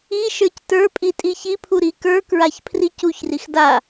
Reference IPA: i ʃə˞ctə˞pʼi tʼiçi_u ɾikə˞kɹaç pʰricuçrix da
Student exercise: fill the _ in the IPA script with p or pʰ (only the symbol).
pʰ